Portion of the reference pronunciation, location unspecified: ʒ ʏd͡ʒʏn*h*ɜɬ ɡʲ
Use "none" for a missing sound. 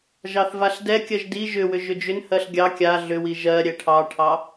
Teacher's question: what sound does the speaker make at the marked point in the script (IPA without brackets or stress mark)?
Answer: h